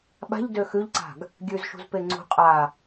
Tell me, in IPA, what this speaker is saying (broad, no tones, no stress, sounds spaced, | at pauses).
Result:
ɓ a̤ ʎ d ø x ʉ ʎ ǀ a̤ ɡ | ɡʲ ʉ z ʃ ṳ z p e ŋ͡ǀ ṳ qʼ a